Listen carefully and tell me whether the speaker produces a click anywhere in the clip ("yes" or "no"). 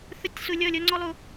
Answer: yes